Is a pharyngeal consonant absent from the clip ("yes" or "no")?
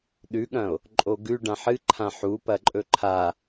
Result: no